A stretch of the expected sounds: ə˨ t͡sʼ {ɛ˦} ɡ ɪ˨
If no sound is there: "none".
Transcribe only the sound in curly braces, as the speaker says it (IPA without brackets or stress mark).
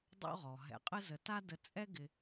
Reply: ɛ˦